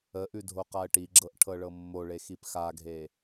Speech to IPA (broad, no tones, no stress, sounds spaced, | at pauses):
ə ʔ ʉ dʱ o q a ə̯ ʈ i ɡ͡ǁ ɤ ʔ ʈʰ ɤ ɭ ɤ mː o ɭ e x i p x a ɡʱ e